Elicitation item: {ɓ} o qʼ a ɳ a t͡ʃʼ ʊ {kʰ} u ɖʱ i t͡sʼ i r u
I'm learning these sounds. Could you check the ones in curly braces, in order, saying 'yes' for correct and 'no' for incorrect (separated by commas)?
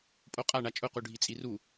no, no